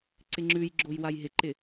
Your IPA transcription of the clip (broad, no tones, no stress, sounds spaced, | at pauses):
ǀ ɪ ŋ͡ǁ ʉ j ɡ͡ǁ o j w a j ɦ ɪ ǃ ɪ